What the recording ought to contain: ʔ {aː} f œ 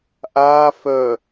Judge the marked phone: correct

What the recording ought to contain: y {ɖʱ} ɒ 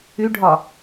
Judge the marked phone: correct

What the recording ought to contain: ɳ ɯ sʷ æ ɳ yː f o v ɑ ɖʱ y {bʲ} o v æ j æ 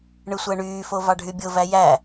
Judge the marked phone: correct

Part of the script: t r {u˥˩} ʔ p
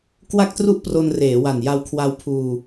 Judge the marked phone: correct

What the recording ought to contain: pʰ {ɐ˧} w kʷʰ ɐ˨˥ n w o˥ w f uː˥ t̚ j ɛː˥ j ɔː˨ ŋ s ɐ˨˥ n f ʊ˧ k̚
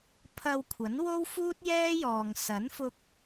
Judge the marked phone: correct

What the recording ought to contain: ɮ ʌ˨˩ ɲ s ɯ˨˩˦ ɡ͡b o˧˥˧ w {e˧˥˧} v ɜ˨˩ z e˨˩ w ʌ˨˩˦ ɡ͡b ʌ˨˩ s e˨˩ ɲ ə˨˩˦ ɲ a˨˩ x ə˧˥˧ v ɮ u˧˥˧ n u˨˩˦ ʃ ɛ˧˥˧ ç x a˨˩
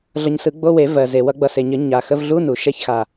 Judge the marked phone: incorrect: e˨˩˦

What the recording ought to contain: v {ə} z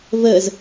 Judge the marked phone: correct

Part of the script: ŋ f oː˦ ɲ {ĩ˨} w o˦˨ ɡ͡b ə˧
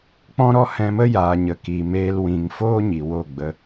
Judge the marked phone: incorrect: i˨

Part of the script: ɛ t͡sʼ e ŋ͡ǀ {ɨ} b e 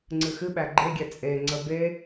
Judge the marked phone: incorrect: ə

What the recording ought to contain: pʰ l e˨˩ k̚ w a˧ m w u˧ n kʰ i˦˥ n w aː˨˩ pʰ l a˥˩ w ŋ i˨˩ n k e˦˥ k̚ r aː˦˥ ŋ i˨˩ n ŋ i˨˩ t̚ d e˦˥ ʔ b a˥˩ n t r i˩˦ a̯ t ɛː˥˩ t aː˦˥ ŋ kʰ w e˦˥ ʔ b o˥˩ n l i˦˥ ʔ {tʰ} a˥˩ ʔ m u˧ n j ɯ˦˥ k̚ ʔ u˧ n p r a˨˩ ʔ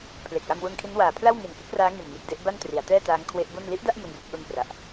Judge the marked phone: incorrect: d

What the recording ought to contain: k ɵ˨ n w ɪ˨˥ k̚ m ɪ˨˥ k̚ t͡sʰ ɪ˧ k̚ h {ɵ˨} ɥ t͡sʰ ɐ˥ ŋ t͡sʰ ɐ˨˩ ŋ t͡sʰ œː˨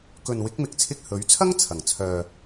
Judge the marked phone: incorrect: ɵ˨˥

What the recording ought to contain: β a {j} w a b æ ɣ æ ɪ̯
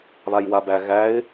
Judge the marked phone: correct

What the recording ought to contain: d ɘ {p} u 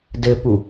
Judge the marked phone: correct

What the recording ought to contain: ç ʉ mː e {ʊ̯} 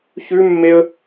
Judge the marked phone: incorrect: ə̯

